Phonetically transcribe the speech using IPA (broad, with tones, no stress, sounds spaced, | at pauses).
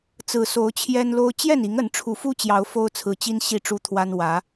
t͡s ɹ̩˨˩ s o˨˦ ʊ̯ t͡ɕʰ j ɛ˦ n l o˦ ʊ̯ t͡ɕ j ɛ˥˨ n i˨˦ ŋ ə˨˦ n ʈ͡ʂʰ u˨˦ f u˦ t͡ɕ j ɑ˨˦ ʊ̯ f o˦ ʊ̯ t͡sʰ ɹ̩˨˦ t͡ɕ i˦ n ɕ i˥˨ ʈ͡ʂ u˦ t̪ʰ w a˦ n w ä˨˦